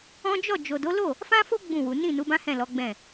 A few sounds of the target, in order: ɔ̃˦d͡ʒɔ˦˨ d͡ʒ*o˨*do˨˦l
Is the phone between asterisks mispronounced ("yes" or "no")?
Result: no